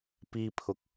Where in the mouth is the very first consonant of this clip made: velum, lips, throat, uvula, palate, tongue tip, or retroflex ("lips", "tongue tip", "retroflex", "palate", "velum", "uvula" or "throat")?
lips